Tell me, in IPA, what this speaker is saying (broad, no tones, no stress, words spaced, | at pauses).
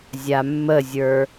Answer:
zʲamːəzʲə˞